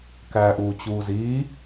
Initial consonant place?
velar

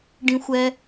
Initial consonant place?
retroflex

